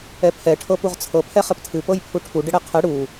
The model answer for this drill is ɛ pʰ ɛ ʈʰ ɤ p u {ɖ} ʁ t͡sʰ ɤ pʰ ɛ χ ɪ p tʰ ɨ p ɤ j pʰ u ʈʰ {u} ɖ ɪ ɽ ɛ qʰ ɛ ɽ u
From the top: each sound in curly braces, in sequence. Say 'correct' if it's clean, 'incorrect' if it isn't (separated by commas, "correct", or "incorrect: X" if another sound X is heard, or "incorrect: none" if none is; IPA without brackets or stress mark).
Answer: incorrect: none, correct